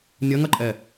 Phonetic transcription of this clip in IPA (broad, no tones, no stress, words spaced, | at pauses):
nʲɐŋɐǃʼɛ